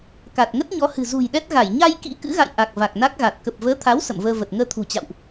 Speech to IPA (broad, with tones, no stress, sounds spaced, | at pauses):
k a˨˩ t̚ ŋ ə˦˥ t̚ ɲ ɔ˨˦ h ɨ̤˨˩ z ṳ˨˩ j ɗ ɛ˦˥ t̚ ɣ a˧˩ j ɲ a˧ j k ḭ˧˥ k ɨ̰˧˥ ɣ a̰˧˨ j ʔ a˨˩ k̚ v a˨˩ k̚ n a˦˥ k̚ ɣ a˨˩ t̚ k ə˨˩ p̚ v əː˨˦ t̪ʰ a˨˦ w s ə̰˧˨ m v əː˧ v ə˨˩ t̚ ŋ əː˧ t̪ʰ ṳ˨˩ t͡ɕ a̰˧˨ w ʔ